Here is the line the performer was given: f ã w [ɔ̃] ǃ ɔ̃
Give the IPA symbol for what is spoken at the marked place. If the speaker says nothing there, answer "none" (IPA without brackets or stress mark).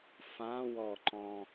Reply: ɔ